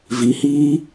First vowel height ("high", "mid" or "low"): high